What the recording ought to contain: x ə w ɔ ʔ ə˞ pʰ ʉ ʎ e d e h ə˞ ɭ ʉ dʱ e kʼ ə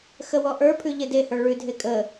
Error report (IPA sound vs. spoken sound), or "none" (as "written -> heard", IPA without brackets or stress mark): none